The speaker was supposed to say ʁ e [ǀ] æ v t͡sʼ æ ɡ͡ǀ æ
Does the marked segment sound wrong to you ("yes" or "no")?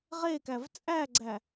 yes